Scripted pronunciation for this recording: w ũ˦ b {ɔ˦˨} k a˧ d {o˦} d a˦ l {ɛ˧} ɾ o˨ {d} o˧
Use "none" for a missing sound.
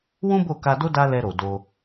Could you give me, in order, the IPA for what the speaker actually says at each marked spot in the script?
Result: o˦˨, o˦, ɛ˧, d

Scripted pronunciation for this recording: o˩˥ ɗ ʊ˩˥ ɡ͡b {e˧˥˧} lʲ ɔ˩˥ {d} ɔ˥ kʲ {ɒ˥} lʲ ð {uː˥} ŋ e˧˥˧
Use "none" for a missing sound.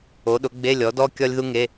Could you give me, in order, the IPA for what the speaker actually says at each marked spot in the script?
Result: e˧˥˧, d, ɒ˥, u˥

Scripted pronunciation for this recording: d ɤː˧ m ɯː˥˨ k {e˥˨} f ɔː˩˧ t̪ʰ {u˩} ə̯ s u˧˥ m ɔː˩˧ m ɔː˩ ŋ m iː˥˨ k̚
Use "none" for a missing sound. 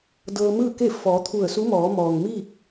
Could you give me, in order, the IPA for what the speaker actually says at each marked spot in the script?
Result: e˥˨, u˧˩

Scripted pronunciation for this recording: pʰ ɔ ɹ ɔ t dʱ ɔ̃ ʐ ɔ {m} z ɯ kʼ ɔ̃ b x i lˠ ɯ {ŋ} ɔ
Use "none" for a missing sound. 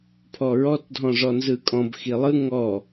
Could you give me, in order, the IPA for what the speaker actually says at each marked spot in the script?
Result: n, ŋ

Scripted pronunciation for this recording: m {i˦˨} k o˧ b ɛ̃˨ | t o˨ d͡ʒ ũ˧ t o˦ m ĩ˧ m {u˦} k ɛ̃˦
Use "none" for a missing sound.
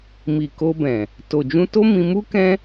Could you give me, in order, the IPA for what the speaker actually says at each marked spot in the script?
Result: i˨, u˦

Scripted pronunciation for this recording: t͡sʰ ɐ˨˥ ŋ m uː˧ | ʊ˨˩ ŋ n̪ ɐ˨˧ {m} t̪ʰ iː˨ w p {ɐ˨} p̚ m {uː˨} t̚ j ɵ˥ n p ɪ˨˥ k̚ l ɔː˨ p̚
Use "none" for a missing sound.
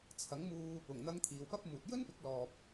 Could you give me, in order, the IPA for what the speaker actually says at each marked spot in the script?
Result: ŋ, ɐ˥, uː˨

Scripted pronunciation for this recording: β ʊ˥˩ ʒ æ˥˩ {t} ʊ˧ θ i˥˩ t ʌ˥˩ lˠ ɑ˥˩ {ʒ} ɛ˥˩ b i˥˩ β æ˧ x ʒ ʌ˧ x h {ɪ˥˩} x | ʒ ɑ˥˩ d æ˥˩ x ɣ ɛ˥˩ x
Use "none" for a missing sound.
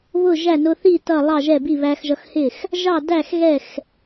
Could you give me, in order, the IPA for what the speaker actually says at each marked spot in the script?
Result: n, ʒ, ɪ˥˩

